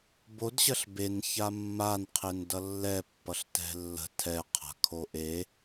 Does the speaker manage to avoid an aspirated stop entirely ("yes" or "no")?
no